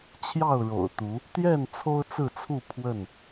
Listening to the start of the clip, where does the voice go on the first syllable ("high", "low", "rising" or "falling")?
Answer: falling